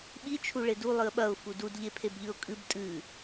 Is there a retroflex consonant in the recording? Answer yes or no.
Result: yes